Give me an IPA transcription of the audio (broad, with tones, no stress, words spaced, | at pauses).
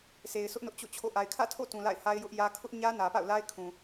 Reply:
se˨ɪ̯sʊ˦ʔ nʊ˦ʔt͡ɕo̰˦˨t͡ɕʰo̰˦˨ ʔa˨ɪ̯kʰä̰˦˨tʰo̰˦˨ tũ˨la̰˦˨ɪ̯ha˦ɪ̯ jʊ˦ʔjä˦ kʰʊ˦ʔɲä˦ nä˨pa̰˦˨ʊ̯la˦ɪ̯kʰũ˨